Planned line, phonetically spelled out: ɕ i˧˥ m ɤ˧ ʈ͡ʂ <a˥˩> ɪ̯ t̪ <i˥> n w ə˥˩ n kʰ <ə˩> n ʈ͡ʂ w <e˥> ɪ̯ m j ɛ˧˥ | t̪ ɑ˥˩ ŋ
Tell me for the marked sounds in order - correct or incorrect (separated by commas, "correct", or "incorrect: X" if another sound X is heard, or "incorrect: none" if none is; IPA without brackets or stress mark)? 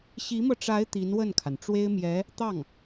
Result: incorrect: a˧˥, incorrect: i˧˥, incorrect: a˩, correct